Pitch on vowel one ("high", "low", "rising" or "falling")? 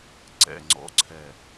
falling